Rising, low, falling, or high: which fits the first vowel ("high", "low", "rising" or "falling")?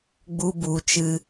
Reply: high